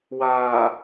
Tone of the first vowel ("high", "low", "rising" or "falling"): low